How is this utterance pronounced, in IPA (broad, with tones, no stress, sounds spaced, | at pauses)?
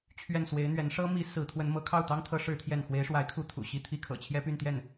t͡ɕʰ ɥ ɛ˥˩ n s w e˧˥ ɪ̯ n̪ ɥ ɛ˧˥ n ʂ ɤ˥ m i˧˥ s ɹ̩˧˥ t̪ʰ w ə˧˥ n m ɤ˧˥ kʰ ɑ˥˩ ʊ̯ t̪ ɑ˥ ŋ t̪ʰ ɤ˧˥ ʂ ɻ̩˥ t̪ʰ j ɛ˥˩ n x w e˧˥ ɪ̯ ʂ w a˧˥ ɪ̯ kʰ u˧˥ t̪ʰ ṵ˨˩ ɕ i˥˩ t̪ʰ i˥ kʰ ɤ̰˨˩ t͡ɕʰ j ɛ˥ p y˥˧ n t̪ j ɛ˥˩ n